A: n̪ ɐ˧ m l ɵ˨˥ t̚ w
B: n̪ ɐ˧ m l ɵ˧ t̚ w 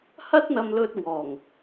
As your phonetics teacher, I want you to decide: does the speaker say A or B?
B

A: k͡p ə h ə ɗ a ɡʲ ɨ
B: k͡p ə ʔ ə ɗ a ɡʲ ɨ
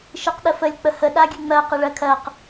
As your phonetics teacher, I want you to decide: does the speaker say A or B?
A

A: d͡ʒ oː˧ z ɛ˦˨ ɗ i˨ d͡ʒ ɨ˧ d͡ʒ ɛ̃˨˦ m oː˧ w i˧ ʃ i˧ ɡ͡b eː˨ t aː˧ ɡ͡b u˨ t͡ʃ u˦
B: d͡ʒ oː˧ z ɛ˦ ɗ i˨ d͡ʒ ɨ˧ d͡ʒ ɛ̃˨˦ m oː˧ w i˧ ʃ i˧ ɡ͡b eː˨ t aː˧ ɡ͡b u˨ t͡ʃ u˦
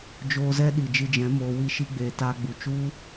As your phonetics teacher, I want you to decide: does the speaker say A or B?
B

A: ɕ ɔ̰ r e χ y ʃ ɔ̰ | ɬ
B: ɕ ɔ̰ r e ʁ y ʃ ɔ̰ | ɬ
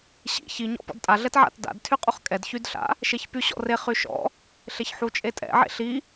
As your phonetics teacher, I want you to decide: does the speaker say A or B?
A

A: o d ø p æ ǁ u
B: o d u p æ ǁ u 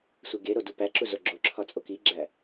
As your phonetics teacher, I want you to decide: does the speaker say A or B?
B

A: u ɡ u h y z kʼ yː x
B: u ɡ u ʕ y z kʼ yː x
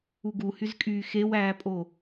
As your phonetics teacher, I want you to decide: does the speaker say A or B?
A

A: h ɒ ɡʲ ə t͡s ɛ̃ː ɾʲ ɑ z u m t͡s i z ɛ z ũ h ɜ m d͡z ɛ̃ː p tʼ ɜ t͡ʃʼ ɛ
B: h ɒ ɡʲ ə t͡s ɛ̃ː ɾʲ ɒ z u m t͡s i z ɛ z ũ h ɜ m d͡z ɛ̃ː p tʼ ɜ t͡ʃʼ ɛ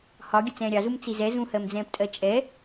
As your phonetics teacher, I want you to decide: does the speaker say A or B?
A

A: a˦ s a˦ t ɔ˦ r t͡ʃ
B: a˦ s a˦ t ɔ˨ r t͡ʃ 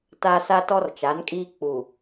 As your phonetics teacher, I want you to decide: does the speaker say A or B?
A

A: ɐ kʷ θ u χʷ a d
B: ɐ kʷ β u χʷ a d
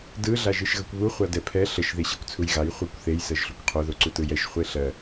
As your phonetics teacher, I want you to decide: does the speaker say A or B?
B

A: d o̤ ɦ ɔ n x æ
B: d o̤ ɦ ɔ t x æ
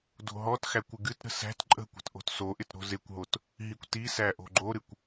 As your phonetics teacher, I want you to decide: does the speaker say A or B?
B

